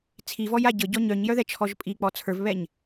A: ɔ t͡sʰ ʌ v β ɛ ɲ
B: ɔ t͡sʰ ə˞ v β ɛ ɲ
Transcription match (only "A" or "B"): B